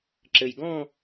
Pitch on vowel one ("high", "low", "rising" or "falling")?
low